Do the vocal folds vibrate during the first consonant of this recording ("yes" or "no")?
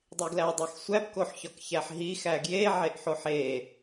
yes